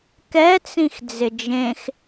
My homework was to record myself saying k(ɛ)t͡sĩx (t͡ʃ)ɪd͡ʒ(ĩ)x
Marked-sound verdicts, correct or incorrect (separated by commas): correct, incorrect, incorrect